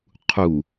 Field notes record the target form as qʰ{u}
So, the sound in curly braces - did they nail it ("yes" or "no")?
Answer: yes